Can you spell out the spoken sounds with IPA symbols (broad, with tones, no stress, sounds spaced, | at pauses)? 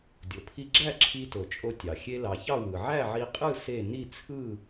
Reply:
dʲ o˩ pʰ i˧ ɡ͡ǁ æ˥˨ ǁʰ i˧ t o˩ t͡ʃʼ o˧ tʲ ɑ˩ xʲ e˧ l ɑ˩ ç ɑ˥˨ w ɯ˩ ʕ æ˥˨ ʕ i˧ qʼ ɯ˥˨ s e˥˨ n i˥˨ t͡sʰ ɯ˥˨